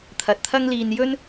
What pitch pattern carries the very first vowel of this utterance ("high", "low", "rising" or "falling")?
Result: low